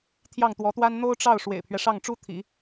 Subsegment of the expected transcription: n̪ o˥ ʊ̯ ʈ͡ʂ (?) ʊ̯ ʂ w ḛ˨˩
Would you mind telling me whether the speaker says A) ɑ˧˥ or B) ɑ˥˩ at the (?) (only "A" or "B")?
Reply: B